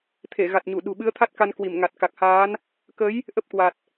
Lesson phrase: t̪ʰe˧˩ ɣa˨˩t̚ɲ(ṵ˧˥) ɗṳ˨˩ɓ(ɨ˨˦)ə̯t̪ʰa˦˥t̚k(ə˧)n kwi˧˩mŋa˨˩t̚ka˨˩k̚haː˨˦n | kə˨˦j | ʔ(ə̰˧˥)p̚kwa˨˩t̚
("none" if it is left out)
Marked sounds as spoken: u˧˩, ɨ˨˦, a˧, ə˦˥

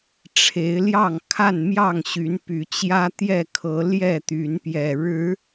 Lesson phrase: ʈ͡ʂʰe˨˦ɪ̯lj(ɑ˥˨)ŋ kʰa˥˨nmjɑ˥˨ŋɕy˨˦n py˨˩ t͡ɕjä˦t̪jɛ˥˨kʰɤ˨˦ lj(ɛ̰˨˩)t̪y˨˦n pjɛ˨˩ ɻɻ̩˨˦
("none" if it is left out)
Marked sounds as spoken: ɑ˥˨, ɛ˥˨

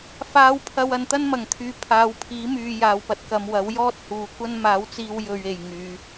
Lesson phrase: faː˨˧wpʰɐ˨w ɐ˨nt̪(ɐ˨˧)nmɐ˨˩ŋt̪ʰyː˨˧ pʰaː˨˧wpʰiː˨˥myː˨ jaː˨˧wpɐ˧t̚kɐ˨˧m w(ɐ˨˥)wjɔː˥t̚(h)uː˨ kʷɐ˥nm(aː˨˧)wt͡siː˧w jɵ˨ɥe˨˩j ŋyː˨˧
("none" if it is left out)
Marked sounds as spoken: ɐ˥, ɐ˨˥, h, aː˨˥

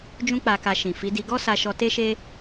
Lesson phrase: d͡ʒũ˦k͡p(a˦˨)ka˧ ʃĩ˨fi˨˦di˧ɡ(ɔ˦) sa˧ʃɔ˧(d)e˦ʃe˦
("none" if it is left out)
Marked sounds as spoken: a˧, ɔ˦, t

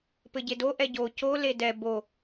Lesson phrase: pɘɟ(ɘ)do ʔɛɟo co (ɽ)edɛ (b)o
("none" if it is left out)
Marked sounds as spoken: e, l, b

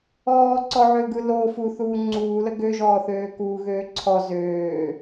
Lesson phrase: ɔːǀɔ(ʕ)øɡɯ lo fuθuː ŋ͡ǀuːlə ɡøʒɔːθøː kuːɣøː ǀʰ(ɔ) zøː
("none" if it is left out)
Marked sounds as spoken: ʕ, ɔ

